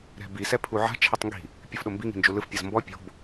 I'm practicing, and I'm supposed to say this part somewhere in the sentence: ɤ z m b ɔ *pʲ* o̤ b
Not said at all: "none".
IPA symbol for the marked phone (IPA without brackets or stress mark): pʲ